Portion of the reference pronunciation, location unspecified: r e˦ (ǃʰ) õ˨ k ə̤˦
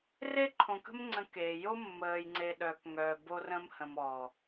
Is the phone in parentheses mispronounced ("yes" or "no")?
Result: no